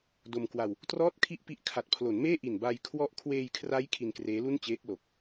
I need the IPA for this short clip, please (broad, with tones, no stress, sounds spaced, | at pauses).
d o˧ m k w a˧ w | t r ɔː˥˩ t̚ kʰ i˥˩ ʔ p i˦˥ ʔ kʰ a˨˩ t̚ pʰ l o˩˦ n m eː˥˩ ʔ i˨˩ n b a˧ j kʰ w ɔ˥˩ ʔ kʰ w eː˧ j kʰ r a˦˥ j kʰ i˧ n k r eː˦˥ l u˥˩ n t͡ɕ eː˦˥ k̚ l o˨˩ k̚